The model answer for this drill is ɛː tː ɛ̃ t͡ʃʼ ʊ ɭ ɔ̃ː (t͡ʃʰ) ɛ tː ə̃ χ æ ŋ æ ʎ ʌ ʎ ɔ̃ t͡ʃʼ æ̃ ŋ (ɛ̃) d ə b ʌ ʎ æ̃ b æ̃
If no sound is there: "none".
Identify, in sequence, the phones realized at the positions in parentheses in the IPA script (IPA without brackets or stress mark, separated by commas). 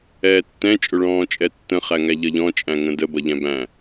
t͡ʃʼ, ə̃